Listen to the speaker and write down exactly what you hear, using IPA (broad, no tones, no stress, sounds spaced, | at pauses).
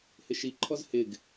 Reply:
h ɪ ʃ i ǃʰ ɔ z h ɪ ɡ